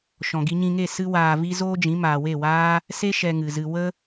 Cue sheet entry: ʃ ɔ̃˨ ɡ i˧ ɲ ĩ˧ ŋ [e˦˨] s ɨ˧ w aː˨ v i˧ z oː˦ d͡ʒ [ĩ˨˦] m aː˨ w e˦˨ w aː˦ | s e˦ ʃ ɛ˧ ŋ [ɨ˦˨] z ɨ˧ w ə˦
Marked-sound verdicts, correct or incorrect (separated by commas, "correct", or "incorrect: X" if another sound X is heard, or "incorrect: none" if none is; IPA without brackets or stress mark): correct, correct, incorrect: ɨ˨